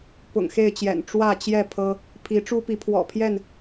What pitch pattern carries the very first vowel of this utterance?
low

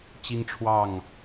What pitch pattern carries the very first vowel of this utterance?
high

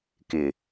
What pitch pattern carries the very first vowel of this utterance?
low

